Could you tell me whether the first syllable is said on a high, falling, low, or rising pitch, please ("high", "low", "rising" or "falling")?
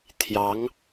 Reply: rising